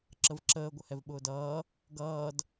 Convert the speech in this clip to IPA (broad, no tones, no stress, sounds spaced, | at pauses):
ǁ ə v ǁ əː ɡʷ ə h ɛ v ɓ ʊː d ʌː | ɡ ʌː d